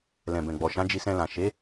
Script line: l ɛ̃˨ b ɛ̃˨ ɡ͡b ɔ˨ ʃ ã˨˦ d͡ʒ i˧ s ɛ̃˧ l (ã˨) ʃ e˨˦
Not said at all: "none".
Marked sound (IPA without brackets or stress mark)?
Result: ã˨